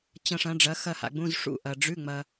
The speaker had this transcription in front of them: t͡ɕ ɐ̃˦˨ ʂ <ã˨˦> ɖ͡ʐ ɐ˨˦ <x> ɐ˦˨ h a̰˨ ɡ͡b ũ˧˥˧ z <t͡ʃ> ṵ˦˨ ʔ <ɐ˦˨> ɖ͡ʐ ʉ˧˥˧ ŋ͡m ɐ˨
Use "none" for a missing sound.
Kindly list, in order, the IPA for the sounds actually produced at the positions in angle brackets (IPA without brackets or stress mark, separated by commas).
ɐ̃˨˦, x, ʂ, ɐ˨